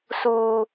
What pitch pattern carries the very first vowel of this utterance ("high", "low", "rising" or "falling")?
low